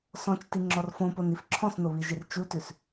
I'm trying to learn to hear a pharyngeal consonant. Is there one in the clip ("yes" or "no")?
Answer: no